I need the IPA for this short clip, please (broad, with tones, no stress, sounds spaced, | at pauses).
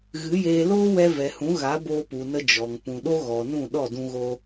ɣ ɨ˨˦ j eː˧ l oː˦ w ɛ˧ v ɛ˨ h ũ˨˦ ɣ a˨˦ b oː˧ p u˨ n ə˧ d͡ʒ ɔ˨ ŋ p ũ˨ ɗ o˦ ɣ ɔ˨ n ũ˦˨ ɗ ɔ˦˨ d ũ˧ ɣ o˧